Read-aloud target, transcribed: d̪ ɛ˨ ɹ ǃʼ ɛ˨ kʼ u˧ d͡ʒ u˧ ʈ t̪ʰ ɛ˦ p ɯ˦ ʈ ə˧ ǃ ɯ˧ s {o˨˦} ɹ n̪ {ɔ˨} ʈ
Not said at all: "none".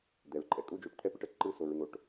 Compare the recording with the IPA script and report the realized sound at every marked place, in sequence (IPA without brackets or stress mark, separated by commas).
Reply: o˨, o˨